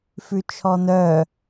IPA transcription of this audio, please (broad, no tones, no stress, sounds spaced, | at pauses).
f ʉ t͡ʃʰ ɔ n œ